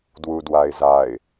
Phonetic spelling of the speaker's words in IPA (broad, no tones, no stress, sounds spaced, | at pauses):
d w u d w a ɪ̯ z a ɪ̯